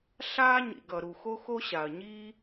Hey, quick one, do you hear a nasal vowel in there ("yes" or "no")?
no